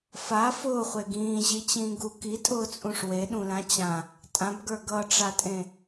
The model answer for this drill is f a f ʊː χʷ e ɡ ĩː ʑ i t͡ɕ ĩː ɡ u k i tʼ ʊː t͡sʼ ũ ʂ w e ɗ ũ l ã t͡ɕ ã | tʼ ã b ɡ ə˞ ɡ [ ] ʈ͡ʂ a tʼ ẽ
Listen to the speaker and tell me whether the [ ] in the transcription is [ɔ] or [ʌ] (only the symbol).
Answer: ʌ